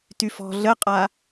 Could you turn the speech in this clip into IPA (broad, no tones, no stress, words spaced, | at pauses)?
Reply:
tyf ɔ̤ ɮəqʼa